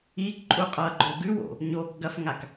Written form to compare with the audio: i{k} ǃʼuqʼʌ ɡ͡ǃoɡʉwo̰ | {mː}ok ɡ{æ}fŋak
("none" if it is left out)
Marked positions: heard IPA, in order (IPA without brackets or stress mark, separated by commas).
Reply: k, ɲ, ɐ